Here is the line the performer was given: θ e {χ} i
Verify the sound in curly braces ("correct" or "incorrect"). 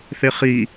correct